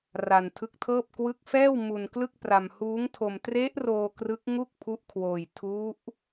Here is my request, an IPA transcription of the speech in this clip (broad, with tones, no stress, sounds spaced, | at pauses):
r a˧ n tʰ ɯ˦˥ k̚ tʰ ɤː˥˩ p̚ k w ɯ˦˥ k̚ f ɛː˥˩ w m u˧ n k l ɯ˥˩ k̚ p r a˧ m h uː˦˥ ŋ tʰ o˧ m t r e˦˥ ʔ r oː˧ k r ɯ˦˥ k̚ ŋ u˥˩ k̚ pʰ u˦˥ ʔ kʰ w oː˧ j tʰ u˦˥ ʔ